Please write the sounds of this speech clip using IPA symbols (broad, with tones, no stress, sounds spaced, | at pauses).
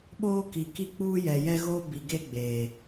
ɓ oː˦ k i˨ k i˦ k͡p uː˦ j ɛ˨ j ɛ˦ ɣ oː˦ b i˨ ɡ e˦ ɡ͡b eː˨